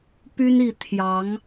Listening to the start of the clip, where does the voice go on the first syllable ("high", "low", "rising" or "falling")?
high